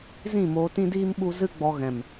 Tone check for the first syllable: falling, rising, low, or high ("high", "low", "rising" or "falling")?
falling